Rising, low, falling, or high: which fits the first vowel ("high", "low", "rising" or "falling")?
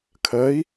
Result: rising